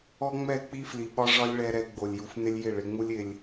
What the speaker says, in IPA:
ɔ˦ŋ͡mɛ˦˨ k͡pi˦fli˨ɓɒ˦ ʐɒ˦lʲɭɛ˧ɾɛ˧ ɡ͡bo˨lʲju˨fnɪ˦lʲ jɪ˦˨ɭɪ˧ŋ͡mu˦lʲ ɪ˧lʲ

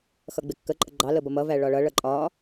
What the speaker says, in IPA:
xʌɡ͡bɪkːə ǃʼəɡ͡ǃɑ ləbʌmʌ væɭɒɭʌ ɭʌǃʼɒ

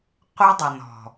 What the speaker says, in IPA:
qʷœ˦dˤə˨nɔ̤˨

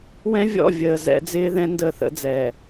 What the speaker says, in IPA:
wɛ̃˦vʲɔ̰˦˨vʲəː˨ zɛ̰˦ d͡zɪː˦ðɛ̃˦ ndə˦˨θə̰˦d͡zɛː˨

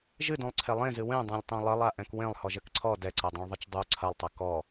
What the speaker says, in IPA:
ʒɨdũlˠǀʰe lˠẽzɨ wẽdˤẽlʲtˤẽ lˠɘlˠaʔɛ̃k wẽlˠhɔʒɘk ǀʰɔ dɛǀɛdˤũɭðˤɘt͡ʃ dˤu ǀʰɐlˠtˤɘ kɔ

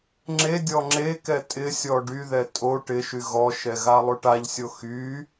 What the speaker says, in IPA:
ŋ͡ǁedʲɔ ŋ͡ǁekɛ tʼɪsʲɔ ɖyðɛ tʼo ʈɪʃy ɣɔʃɛ ɣalˠoʈaʎsʲo xy

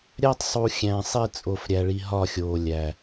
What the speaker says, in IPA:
ɾʲæ˦tˤsˤu˨ xʲæ̃˨sˤi˦˨ t͡sʼo˨fɾʲæ˨ɭi˨ ɦɒ˦˨xʲoː˨lʲæ˨

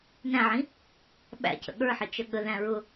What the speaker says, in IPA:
næ̃ʕĩ | ɓæ̰cə̰ ɠə˞ħət͡ʃə ɠəðæ̃ ɹʊ

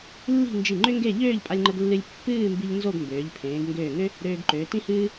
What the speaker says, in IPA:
lːi̤˥˧nd͡ʒi˧˩ŋ͡ǃʏ˥ŋɡe˥˧ ʎøː˥˧ʎpʼa˧lʲŋ͡ǃə˧ɡlːɨ˧lʲ pːɨː˥˧mbi˧ʎ nzo˥˧ɡmbøː˩˧ʎpʰẽː˩˧ɡ ŋɡøː˧˩ŋø˥ | ɾøː˧ɡǃøː˩˧tĩ˥hɨː˥

